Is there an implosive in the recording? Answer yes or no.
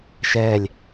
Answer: no